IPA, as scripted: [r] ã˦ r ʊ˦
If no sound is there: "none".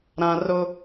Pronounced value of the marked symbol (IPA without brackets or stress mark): ɾ